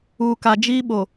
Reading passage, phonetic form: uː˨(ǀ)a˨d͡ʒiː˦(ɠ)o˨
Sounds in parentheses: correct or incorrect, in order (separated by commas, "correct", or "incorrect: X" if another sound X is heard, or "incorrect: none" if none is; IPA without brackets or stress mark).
incorrect: k, incorrect: ɓ